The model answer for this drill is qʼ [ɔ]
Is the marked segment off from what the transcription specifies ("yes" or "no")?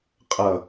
yes